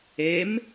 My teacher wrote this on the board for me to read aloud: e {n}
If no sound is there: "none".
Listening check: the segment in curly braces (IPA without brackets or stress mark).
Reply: m